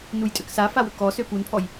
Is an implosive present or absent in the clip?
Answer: absent